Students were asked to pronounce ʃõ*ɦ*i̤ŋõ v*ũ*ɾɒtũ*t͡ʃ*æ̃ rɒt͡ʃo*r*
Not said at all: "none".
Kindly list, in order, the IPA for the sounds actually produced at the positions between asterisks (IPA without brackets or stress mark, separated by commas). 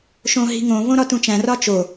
ɦ, õ, t͡ʃ, none